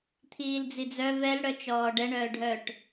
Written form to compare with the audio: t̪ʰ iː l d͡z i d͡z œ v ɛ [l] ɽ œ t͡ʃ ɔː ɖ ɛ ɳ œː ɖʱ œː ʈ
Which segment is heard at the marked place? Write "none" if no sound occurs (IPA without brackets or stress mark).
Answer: l